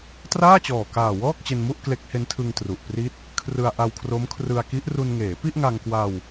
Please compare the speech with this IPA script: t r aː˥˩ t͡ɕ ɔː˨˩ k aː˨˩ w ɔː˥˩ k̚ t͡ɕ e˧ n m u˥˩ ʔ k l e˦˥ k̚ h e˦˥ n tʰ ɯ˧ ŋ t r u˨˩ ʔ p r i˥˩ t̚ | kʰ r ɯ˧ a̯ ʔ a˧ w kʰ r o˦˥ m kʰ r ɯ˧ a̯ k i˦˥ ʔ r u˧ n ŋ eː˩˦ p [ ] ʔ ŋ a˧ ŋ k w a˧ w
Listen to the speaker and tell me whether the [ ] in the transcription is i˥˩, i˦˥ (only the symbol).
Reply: i˥˩